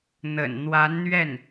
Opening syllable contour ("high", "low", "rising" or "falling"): low